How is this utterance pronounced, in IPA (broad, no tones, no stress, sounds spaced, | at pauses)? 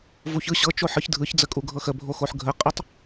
v u ç ɯ ɕ ɤ t͡ʃ o ħ ɯ ç dʱ ɯ ç d͡z ə kʼ u ɡʱ ɤ x ə bʱ o x o ħ ɡʱ ə qʼ ə tˤ